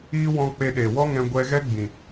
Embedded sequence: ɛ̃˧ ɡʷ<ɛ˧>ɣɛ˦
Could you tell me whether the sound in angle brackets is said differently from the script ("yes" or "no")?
no